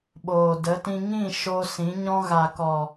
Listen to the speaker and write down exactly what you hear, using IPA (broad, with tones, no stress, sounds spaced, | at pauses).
ɓ oː˨ d ə˨˦ t ĩ˧ ŋ ĩ˦˨ ʃ o˧ s ĩ˨˦ ɲ ɔ̃˦ ɣ a˨ k ɔ˨